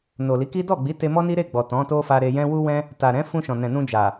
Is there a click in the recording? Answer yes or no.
no